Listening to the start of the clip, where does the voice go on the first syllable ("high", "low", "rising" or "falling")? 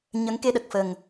rising